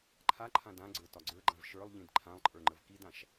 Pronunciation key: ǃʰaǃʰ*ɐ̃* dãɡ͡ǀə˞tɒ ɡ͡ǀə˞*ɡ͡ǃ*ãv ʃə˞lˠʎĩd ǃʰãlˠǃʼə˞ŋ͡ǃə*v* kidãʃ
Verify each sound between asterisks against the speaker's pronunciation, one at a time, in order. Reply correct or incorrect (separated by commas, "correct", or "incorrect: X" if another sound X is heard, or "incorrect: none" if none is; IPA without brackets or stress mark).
incorrect: ã, correct, correct